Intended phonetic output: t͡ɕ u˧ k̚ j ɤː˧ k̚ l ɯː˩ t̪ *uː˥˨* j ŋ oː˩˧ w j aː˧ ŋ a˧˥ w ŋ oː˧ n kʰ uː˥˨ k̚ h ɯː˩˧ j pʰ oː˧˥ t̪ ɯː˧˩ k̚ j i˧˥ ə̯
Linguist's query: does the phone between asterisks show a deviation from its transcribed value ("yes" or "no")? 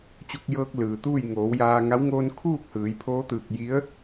no